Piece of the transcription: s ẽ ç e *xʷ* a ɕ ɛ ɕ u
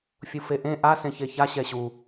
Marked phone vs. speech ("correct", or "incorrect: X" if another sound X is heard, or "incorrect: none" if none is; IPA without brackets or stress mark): incorrect: ç